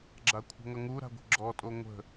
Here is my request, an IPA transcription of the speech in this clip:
ɡ͡ǁ a kʷʰ ə̤ ŋ ʌ ŋ u ɾ a̤ ɡʷ ə̤ ɡ͡ǁ ɔ tʼ o ŋʷ ə̤

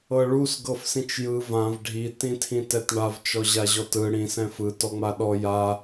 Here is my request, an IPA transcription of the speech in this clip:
ɤ ɭ u s ɡ ɤ f s ĩ t͡ʃ j ɯ v ã v ɖʱ i t ĩ tʰ ĩ t ɛ t ɳ a v t͡ʃ ɔ ʑ a ʑ ɔ t ɯ ɽ ĩ s ɛ̃ f ɯ t ɔ ŋ͡m a ɗ ɔ j a

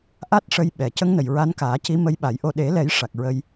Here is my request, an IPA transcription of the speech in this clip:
ʔ a˦˥ t̚ ʂ ə˧ j ɓ ɛ˨˩ c ə˧˥ ŋ n ə˨˩ j ɹ a˧˥ n k aː˨˩˦ c i˧˥ m ə˧˥ j ɓ a˨˩˦ j ʔ o˧ ɗ e˨˩˦ l ɛ˨˩˦ j ʂ a˨˩ k̚ ɹ ə˧ j

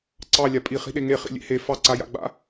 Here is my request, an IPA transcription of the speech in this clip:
ǀ ɑ lʲ a pʼ i χ i̤ ɗ e ŋ e χ ḭ lʲ ḛ h e f ɑ ǀ a j a̰ ɡ͡b a̰

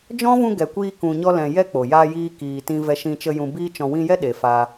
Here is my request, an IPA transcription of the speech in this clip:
d͡ʒ ɔ̃˦ v ũ˧ ɡ ɛ˨ kʷ iː˧ k ũ˨ ɲ ɔ˧ l ɛ̃˨ j ɛ˦ k͡p o˨ j a˧ j iː˧ k iː˨ t ĩ˧ v ɛ˧ ʃ ĩ˧ t͡ʃ ə˧ j ũ˨ b iː˧ t͡ʃ ɔ̃˨ w ĩ˧ j ɛ˦ ɗ e˨ f a˧

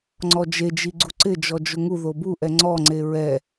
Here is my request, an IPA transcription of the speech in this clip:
ŋ͡ǀ ɔ d͡ʒ e d͡ʒ i ɡ͡ǀ u ǀ ɪ d͡ʒ ɔ d͡ʒ ʊ ŋ u ð o b u ʔ ɛ ŋ͡ǀ ɔ ŋ͡ǀ e ɹ ɛ

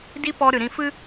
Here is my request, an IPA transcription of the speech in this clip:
d i˦ p ɔ˧ ɾ ɨ˨ ɾ ĩ˧ f ɨ˦

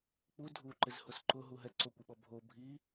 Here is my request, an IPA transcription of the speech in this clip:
k͡p u dʱ u ǃ ɪ z h ʊ s ǃ ʊ ɦ u ɦ ɛ ǀ o kʷ ɪ ɓ ɔ bʱ o bʱ i

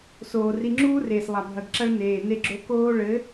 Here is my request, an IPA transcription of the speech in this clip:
s oː˨ r i˧ ŋ͡ǁ uː˦ r eː˨ s lˠ a˨ bʱ ɐ˨ ɡ ǁ ɐ˦ ɭ n eː˨ n e˧ ɡ͡ǁ o˧ k oː˦ ɭ ɘ˨˦

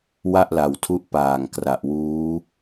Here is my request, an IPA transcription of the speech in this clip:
w a˥˩ ʔ l a˨˩ w tʰ u˦˥ ʔ p aː˨˩ ŋ k r a˨˩ ʔ w uː˦˥

